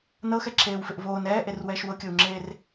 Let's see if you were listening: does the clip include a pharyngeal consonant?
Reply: no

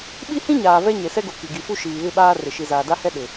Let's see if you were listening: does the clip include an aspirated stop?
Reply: no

